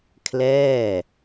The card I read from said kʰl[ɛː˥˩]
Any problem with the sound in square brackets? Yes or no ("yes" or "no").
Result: no